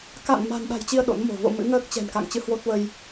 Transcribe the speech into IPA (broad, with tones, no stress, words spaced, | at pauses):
ka̰˧˨n ma̤˨˩nɗa̤˨˩jt͡ɕi˧ə̯ ɗo̰˧˥nmo̤˨˩ vo̰˧˨ mɨ̰˧˥ŋəː˦˥k̚t͡ɕɛ̤˨˩n ka̰˧˨ŋt͡ɕɨ˧hwo˦˥t̚və˧j